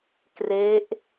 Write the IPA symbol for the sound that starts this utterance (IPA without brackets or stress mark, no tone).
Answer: k